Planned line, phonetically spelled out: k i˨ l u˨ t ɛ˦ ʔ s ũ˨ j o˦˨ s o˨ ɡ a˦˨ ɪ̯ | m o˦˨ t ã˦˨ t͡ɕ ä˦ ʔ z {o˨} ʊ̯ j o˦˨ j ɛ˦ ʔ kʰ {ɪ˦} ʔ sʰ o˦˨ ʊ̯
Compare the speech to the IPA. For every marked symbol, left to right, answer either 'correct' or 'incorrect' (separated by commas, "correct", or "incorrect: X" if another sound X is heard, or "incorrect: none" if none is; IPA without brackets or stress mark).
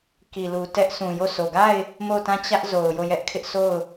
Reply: correct, correct